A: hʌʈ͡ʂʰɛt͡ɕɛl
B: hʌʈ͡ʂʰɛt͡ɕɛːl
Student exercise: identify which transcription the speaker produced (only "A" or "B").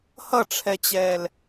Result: B